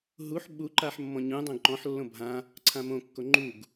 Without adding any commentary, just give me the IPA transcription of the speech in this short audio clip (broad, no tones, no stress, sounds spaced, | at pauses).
ɦ u ħ ɓ u ǃ a ħ mː ɔ̃ ɲ ũ dˤ õ ɡ ǃ ɔ̃ ħ lː õ bʱ ã | ǀʰ ã m õ kː o ŋ͡ǃ u ɡ